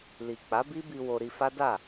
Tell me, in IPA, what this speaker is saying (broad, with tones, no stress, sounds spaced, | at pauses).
l i˨ k͡p a˨˦ b i˦ b i˧ w o˧ ɾ i˧ f a˦ d a˦˨